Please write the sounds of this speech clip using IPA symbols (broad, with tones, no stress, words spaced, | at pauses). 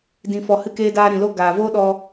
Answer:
dĩ˨fɔ˨ hɨ˧keː˧daː˧ ɾĩ˨lo˦ ɡaː˨voː˦ɗɔ˧